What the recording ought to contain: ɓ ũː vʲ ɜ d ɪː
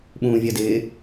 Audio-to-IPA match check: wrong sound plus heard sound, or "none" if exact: none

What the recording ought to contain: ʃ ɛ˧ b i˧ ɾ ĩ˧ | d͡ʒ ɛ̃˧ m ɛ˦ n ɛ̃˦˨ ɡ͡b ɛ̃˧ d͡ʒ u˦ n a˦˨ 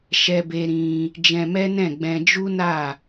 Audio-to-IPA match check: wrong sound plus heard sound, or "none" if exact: i˧ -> e˧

